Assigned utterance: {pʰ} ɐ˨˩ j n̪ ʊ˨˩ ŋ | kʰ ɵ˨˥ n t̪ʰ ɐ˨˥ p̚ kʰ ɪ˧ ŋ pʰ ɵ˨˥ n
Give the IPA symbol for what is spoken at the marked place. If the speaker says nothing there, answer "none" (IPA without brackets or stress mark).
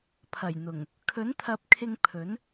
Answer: pʰ